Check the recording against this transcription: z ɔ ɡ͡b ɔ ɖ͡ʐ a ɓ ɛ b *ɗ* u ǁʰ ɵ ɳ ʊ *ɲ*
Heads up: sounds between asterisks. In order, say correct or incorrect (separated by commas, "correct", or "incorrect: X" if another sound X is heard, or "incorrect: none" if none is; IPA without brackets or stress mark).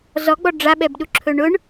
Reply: correct, incorrect: ɳ